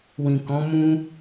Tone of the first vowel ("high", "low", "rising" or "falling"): low